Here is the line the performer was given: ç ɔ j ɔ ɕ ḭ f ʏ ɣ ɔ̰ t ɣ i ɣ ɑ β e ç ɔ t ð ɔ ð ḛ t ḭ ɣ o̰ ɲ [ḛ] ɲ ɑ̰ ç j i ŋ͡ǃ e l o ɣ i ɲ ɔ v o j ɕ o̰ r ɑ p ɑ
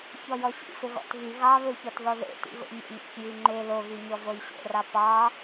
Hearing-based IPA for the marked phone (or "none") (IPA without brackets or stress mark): ḛ